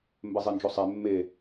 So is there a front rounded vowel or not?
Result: no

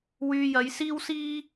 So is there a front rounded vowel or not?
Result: yes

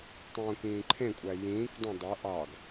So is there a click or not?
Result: yes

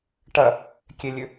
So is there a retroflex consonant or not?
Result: yes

